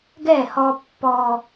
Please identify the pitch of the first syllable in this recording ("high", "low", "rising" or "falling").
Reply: falling